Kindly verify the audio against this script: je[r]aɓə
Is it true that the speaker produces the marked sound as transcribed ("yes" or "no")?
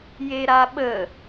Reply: no